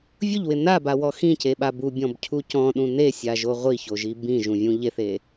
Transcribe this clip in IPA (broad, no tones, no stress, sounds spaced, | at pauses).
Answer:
vʲ ʊ ʎ w ɪ n a b a w ɔ x ĩ c e ɓ a b u bʲ ɔ̃ b cʰ u c ɔ̃ ɗ ũ n e sʲ a ʒ o ʁʷ i ç o ʒ i b ĩ ʒ ũ vʲ ũ ʎ e θ e